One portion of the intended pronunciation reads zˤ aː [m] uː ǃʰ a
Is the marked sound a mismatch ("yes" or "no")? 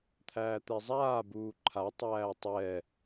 yes